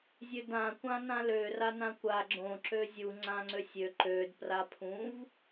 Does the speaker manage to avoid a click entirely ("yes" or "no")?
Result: no